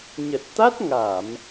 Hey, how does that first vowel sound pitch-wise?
low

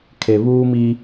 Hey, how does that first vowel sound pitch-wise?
low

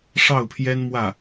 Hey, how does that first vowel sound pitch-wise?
falling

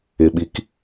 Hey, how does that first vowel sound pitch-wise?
low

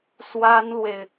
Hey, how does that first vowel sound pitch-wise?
high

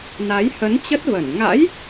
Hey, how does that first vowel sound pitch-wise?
rising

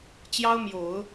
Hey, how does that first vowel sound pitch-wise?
high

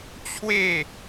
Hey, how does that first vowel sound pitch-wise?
falling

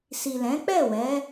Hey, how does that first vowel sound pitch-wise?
low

